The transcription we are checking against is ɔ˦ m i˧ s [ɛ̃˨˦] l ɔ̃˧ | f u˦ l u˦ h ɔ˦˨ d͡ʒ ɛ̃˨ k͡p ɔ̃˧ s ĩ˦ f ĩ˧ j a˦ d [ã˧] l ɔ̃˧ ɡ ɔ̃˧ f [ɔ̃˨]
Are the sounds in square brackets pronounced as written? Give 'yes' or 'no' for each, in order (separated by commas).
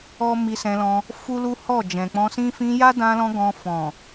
no, yes, yes